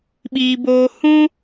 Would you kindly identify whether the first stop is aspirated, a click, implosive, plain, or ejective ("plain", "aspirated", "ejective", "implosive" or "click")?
implosive